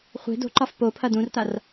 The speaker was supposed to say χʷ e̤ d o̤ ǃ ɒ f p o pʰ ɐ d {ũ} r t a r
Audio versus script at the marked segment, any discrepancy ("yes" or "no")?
no